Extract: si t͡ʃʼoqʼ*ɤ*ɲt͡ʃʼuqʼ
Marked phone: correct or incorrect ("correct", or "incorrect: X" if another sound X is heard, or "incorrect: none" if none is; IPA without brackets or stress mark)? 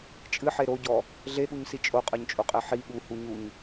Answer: correct